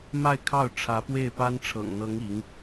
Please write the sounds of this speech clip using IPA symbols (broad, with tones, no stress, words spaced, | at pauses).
ma˥˧ɪ̯kʰɑ˥˩ʊ̯ ʈ͡ʂʰä˧˥pwe˥˩ɪ̯pa˥n ʈ͡ʂʰɤ̰˨˩ŋn̪ɤ˧˥ŋ i˧˥ŋ